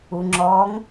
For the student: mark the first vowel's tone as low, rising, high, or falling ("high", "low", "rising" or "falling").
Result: low